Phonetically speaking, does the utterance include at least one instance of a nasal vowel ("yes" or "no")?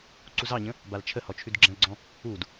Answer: yes